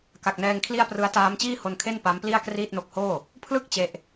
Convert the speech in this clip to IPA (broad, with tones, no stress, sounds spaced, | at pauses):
k a˨˩ k̚ n ɛː˧ ŋ kʰ l i˥˩ a̯ p r ɯ˦˥ a̯ t aː˦˥ m t͡ɕ iː˥˩ h o˧ n kʰ e˥˩ n p a˦˥ m p l i˥˩ a̯ k r iː˥˩ t̚ n o˦˥ k̚ h oː˥˩ | pʰ l ɯ˦˥ k̚ t͡ɕ e˦˥ ʔ